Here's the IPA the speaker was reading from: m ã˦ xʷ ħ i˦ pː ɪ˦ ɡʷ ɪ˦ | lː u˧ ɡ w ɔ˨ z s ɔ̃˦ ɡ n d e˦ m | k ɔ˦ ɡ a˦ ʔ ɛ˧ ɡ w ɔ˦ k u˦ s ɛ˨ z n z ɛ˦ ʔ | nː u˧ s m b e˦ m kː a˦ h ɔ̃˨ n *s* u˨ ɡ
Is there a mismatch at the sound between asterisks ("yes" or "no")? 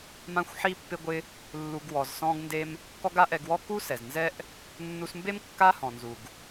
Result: yes